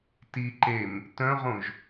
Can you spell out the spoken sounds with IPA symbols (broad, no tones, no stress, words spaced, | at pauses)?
ti ǃem | tœ̃ʁõʒ